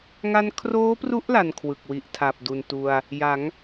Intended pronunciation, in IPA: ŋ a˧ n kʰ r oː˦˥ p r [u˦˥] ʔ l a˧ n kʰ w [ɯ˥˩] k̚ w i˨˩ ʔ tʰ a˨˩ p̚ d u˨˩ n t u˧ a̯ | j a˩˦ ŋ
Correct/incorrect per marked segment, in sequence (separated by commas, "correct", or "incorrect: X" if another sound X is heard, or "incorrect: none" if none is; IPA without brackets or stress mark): correct, incorrect: ɯ˨˩